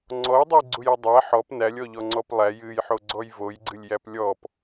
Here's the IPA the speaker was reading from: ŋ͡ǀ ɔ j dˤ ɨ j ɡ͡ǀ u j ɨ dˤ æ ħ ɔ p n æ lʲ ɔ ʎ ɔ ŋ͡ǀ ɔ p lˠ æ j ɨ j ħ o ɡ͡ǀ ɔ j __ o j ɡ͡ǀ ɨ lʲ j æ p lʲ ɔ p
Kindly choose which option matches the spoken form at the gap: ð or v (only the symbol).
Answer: v